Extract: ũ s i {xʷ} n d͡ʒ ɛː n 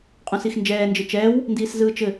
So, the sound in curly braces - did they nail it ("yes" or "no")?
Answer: no